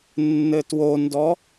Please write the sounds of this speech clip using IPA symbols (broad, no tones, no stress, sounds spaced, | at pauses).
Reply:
nː ɘ t w o n d ɔ